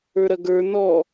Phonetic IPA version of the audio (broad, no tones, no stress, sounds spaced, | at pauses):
ə˞ ɾ ɐ ɡ ə˞ n ɔ